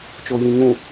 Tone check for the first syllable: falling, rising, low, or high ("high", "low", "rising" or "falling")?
low